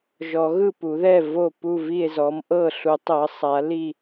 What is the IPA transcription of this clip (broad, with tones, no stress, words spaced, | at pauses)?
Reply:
ʒɔ˨˩˦ɣɯ˥˩pu˨˩˦ðɛ˥˩ vo˥˩ pu˥˩vi˥˩e̯zɔ˩˥m ʔɤ˥˩ɬu˨˩˦ tˤɤ˩˥sˤa˩˥li˥˩